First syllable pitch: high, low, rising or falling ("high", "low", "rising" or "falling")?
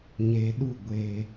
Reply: low